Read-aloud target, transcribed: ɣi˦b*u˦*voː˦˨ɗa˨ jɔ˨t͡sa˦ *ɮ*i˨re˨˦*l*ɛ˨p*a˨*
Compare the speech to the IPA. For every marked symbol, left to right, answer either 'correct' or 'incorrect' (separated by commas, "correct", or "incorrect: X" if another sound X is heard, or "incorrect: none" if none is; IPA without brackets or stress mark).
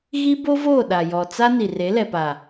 incorrect: o˦, incorrect: n, correct, correct